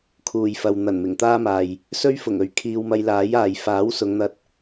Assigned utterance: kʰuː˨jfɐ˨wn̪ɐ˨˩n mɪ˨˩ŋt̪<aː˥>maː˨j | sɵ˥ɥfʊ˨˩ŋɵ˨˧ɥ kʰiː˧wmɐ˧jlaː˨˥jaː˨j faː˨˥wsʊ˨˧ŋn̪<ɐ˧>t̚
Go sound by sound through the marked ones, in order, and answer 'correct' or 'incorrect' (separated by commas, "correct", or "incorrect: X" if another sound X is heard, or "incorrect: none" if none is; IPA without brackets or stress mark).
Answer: correct, correct